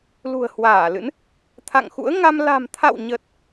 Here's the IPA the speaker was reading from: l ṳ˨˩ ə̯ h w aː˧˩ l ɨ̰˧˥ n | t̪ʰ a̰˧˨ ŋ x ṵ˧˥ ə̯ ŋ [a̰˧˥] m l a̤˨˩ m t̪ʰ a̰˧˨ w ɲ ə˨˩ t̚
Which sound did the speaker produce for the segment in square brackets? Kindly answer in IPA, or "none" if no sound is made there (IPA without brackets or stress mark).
a˧